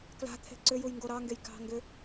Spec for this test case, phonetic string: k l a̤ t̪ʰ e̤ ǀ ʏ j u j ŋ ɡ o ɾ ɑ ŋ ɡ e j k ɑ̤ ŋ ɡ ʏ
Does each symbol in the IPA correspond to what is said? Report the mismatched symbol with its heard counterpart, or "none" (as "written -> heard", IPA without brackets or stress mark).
none